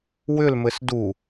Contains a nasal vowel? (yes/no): no